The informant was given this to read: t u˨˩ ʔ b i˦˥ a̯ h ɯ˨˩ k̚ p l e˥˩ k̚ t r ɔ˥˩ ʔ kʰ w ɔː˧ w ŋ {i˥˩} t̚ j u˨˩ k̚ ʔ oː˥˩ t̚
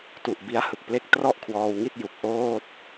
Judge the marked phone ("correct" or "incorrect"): correct